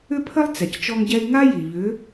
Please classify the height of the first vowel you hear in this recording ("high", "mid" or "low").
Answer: high